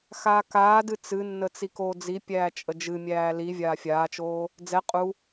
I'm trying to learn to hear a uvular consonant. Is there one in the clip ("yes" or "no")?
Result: yes